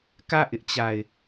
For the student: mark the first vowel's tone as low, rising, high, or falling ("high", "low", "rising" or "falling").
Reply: falling